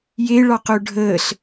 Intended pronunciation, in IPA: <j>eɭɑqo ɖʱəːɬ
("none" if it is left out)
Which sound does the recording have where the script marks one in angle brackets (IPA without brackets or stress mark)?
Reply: j